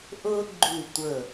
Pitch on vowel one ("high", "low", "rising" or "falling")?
high